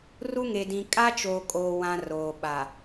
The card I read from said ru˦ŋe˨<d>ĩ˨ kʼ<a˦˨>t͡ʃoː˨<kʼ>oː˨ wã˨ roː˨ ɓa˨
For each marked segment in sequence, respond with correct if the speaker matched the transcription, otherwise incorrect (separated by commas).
correct, incorrect, correct